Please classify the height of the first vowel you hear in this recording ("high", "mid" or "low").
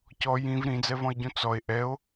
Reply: mid